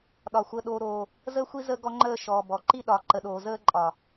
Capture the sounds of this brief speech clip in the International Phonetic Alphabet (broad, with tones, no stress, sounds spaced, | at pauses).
ɗ ɒ˨ xʷ əː˨ ɗ oː˨ ɾ oː˨ | z əː˦ xʷ i˦ z ə˦ ɡ ɔ˦ ŋ͡ǃ əː˦˨ ʃ ɔ˨ b ɔ˨ ǃ i˦ ɗ ɒː˨ ǃ ə˨ ɗ oː˨ z əː˦ ǃʼ ɒ˨